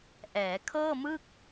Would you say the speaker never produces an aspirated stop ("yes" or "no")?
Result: no